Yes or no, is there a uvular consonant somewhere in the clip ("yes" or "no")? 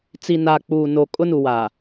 no